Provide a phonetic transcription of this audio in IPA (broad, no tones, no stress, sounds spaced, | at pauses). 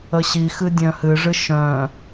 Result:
ə ɕ i x ɨ dʲ œ̃ h ɨ ʐ ɨ ʃ œ̃